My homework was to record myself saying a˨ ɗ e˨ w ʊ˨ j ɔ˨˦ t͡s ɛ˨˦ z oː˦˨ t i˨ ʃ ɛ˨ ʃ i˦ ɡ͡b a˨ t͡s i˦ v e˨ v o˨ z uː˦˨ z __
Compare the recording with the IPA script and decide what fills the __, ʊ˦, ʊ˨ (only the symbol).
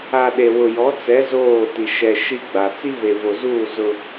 ʊ˦